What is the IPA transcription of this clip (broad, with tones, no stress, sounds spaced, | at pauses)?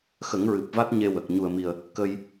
x ə˨˩˦ ŋ ɹ ɨ˨˩ p̚ v a˦˥ t̚ ɲ e˧ w ə˨˩ k̚ ɲ u˨˩ ə̯ m i˨˩ ə̯ | k ə˧ j